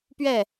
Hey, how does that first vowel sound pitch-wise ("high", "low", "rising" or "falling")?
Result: falling